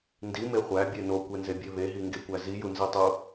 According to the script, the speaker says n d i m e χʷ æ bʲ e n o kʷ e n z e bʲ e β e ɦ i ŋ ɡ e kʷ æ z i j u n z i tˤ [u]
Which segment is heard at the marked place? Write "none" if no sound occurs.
u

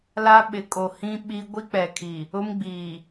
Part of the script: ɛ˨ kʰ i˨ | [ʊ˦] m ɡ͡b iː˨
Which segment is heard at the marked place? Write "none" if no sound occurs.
ʊ˦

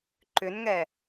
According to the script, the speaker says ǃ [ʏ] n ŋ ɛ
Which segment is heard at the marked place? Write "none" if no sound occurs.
ʏ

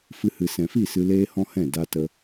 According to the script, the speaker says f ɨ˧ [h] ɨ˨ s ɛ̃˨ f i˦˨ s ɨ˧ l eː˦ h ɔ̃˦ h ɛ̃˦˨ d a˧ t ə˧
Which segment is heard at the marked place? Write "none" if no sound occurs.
h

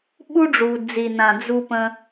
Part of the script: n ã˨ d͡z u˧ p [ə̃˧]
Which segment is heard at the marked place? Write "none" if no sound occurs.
ə̃˧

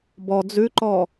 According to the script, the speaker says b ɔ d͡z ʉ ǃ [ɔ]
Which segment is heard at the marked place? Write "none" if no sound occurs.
ɔ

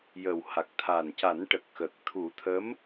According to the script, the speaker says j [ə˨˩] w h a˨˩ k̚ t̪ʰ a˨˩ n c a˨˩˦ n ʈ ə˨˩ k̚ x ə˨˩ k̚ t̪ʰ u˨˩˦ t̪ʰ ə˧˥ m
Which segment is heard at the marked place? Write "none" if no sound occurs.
ə˨˩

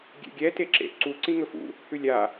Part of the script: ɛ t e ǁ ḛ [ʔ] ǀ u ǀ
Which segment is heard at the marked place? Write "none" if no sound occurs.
ʔ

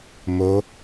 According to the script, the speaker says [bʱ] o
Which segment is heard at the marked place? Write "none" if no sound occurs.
m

